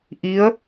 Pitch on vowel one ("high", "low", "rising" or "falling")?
rising